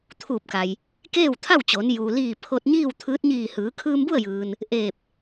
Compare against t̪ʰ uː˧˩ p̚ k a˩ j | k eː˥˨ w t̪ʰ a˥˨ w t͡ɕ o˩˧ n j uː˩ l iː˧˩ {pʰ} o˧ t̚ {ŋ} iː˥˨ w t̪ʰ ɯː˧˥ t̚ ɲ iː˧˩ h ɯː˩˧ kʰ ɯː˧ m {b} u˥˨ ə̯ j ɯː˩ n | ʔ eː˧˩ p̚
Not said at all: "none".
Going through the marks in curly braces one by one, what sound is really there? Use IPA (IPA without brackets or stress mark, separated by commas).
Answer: pʰ, ɲ, b